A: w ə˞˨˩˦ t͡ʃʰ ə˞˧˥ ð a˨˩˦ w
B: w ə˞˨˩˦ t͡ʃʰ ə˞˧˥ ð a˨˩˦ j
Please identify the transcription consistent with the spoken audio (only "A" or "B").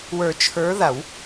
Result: A